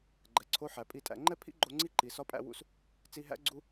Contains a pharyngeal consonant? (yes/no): yes